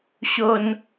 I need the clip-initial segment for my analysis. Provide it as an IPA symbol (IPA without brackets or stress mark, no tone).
ɕ